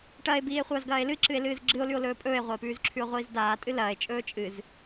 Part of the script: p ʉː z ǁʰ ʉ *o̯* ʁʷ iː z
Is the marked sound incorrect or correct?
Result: correct